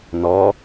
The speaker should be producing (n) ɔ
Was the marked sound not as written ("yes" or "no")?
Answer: no